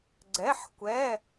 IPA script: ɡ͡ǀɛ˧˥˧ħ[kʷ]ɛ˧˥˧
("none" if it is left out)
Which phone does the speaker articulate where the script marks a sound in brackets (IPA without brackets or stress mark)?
kʷ